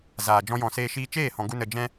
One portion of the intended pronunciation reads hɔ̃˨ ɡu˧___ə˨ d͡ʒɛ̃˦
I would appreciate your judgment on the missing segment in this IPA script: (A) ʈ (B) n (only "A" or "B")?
B